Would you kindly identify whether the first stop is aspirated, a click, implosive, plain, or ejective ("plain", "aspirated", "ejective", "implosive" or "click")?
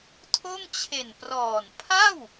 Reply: aspirated